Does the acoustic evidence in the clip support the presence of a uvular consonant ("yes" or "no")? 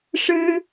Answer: no